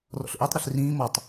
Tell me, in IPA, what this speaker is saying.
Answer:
r ɔ̰ ɬ ʔ ø tˤ ɾ ø ɬ r ĩː m ɔ tˤ

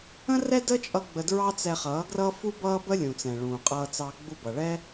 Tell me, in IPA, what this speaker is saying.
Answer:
ə̃˦ r ɛ˦ d ə˦ t͡ʃʼ ʌ˧ ɡ͡b ə˧ d ɹ ɑ˦ t͡s ɛ˧ χ ʌː˨˦ ɡ r ʌ˦ f u˦ b ʌː˦ b ə˦ lʲ ũ˨ t͡s ɛ̃˨ ɭ ũː˨ qʼ ʌː˧ t͡s ɑ˧ ɡ͡b u˧ b ʌ˨ ɭ ɛ˦

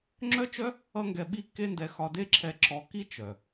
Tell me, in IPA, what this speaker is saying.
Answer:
ŋ͡ǁ œ˦ t͡ʃ œ˦ | ʌ˦ ŋ ɡ ɛ˧ ɓ i˦ kː e˦ n d ɛ˧ x ɒ˧ d e˦ ǁʰ ɛ˧ ǁ ɔ˧ k i˦ t͡ʃ œ˨

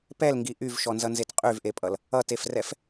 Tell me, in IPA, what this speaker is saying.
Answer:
p ɛ l ŋ ɡ i ʔ y v ʃ ɔ n z ʌ n z e t qʼ y v ʔ e pʼ ʌ l | ʌ t e f r ɛ f

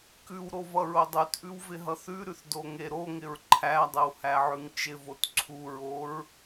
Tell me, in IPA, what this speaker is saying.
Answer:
k ʉ w ɾ o v ʌ ɹ o dˤ ʉ t ʔ ʉ w v ɪ ɦ ʌ θ ʉ ɾ ʉ θ d o ŋ e ɾ o ŋ ɪ ɹ ǃʰ æ dˤ ɪ w h æ ʕ ʉ ŋ t͡ʃ ɪ v o t ǀʰ u ɹ o ɹ

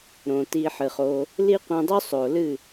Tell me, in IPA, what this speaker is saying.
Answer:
ɾ õ˨ t i˧ ħ ɨ˨ χ o˧ | l i˦ qʷ ĩ˧ dˤ u˦ sˤ o˨ l ɨ˦˨

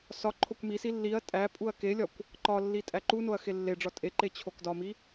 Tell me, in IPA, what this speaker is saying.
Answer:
s ɒ ǃʰ o kʷ m i s i lː i ɐ̯ tʼ æ pʼ u ɐ̯ k e lʲ ɒ kʷ | ǃ ɒ lː i tʼ æ ǃ u n o ɐ̯ x e lː e ɖ͡ʐ ɒ tʼ e ǃ e t͡ɕʰ o k d ɒ m i

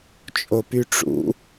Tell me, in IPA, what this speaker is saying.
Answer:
t͡ʃʼ o p y ʈ͡ʂ ṵ

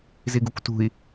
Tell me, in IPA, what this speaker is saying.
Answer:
z i ɡ u kʷ t ṳ i̯

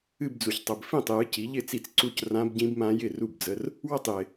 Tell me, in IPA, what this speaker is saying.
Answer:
ɨ˥˧ b d͡z u˨ ç tˤ ə˨ b f ĩ˥˩ tˤ j ɨ˨˥ c i˨˥ ʎ ɪ˥˧ t͡s i˥˩ t͡s ǀ u˥˧ c r ã˦˥ b ɟ ĩ˦˥ b m ã˦˥ j ɪ˥˩ r u˥˩ b d͡z ə˧˥˧ r | w ə˥˩ tˤ j ɪ˨

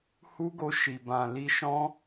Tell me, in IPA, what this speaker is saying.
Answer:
h u˦ ɡ o˧ ʃ i˨ b ã˨ l i˧ ʃ ɔ̃˦

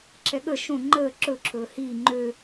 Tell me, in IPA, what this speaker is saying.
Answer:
ǁʰ ɛ ɠ ə ʃ õ ŋ͡ǃ əː ǁ ɵ ǁʰ ɵː h iː ŋ͡ǃ ø

